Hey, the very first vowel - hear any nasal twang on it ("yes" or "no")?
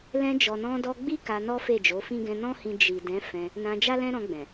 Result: yes